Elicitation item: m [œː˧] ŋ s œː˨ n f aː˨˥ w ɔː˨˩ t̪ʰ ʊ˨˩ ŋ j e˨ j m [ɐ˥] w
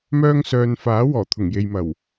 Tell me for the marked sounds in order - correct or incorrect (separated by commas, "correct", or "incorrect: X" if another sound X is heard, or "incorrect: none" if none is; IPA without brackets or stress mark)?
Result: correct, incorrect: ɐ˨˩